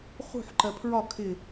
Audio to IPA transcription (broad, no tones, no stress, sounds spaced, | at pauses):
χ ṳ ħ ǃ ɜ pʰ ɹ ɒ kʰ ɪ